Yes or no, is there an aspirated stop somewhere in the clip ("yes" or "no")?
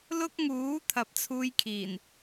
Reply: yes